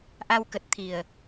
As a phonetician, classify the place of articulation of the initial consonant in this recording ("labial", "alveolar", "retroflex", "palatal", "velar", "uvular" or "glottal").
glottal